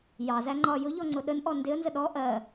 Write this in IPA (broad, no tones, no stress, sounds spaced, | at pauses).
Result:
j ɑ z æ ŋ͡ǃ ɒ j ʊ ʎ ɔ ŋ͡ǀ ʊ ɗ ə n ʔ ɔ n d ɪ ə̯ n z ə ɗ ɔ ʔ ɜ